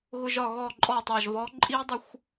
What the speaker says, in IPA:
ɣʊ˧ʒ ɒ˧˩ɣɔː˧˩ ǃʼɔː˧˩tˤɑ˧˩ʒvɔː˨˥ ǃʼiː˦˥dˤʊ˧xʷ

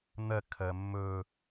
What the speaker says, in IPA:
n̪ɜkʰɜ mːɵ

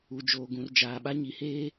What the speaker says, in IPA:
u˨d͡ʒoː˨ ɡũ˨r d͡ʒaː˨ɓa˦ɲi˨ heː˦

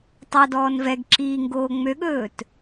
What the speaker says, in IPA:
tˤɑdɔːn vɛɡǁiːŋɡoː ŋ͡møɠɵːt

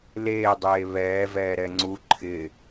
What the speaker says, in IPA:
leːdˤeː βɛːvɛːɾɛ ŋ͡ǀu ǃʰɪ

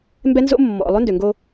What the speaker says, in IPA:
mbɛ˦nzo̰˦ mːɔ̰˨ lˠo˦ndø˨ŋɡo˦

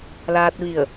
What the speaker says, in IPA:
laː˧t̚ ʋi˧˩ə̯

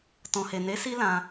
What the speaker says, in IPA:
tɔ̃˨he˨ne˨˦ si˦lã˧

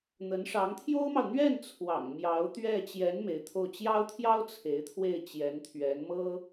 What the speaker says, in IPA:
n̪ə˧˥nʂɑ˧˥ŋ t̪ʰjo˥ʊ̯mɑ˨ʊ̯ n̪ɥɛ˥˩nt͡sʰwɑ̰˨˩ŋ mjɑ˧˥ʊ̯t̪ɥɛ˥˩ t͡ɕjɛ˧˥n me˧˥ɪ̯t̪ʰo˥˩ʊ̯ t͡ɕjɑ˥ʊ̯t̪ʰjɑ˥ʊ̯ t͡sʰe˧˥ɪ̯t̪ʰwe˥˩ɪ̯ t͡ɕjɛ˧˥nt̪ʰɥɛ˧˥n mɤ˥

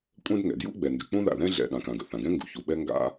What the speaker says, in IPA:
kʷʼɛ̃˥dŋɛ̰˩ djṵ˥ɡ͡bɛ˩ndʏ˩ k͡pũ˥ða̰˩ðɛ̃˥ ɮɛ̰˩ɠã˩kã˩ ɡə̰˩θã˩ɡɛ̃˥ ŋɡṵ˩çu˩ ɓɛ˥ŋɡa̰˥

